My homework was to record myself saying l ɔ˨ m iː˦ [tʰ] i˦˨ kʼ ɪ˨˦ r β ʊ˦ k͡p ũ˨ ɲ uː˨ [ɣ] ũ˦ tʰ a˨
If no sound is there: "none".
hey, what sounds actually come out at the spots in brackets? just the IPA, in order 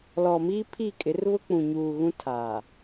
pʰ, ɣ

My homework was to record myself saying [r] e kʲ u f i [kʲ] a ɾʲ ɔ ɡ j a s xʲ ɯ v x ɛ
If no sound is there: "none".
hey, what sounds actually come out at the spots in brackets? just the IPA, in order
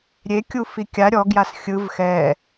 ɾʲ, kʲ

